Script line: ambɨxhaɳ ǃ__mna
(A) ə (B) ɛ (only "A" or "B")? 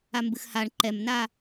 B